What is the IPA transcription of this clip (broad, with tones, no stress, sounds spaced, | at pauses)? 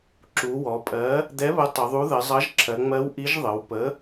ǁ u˩˧ w ɔ˩˧ pʼ ɜ˨˥ | d̪ ɛ˨˥ β ə˨˥ tˤ ə˩˧ ðˤ u˨˥ ð ə˩˧ zˤ ʌ˨˥ ʒ ǁʰ ɜ˩˧ ŋ͡m ɜ˨˥ w ʔ i˨˥ ʒ ðˤ ə˩˧ w p ə˨˥